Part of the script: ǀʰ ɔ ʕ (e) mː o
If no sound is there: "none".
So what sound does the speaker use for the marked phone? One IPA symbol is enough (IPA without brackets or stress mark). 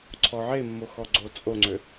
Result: e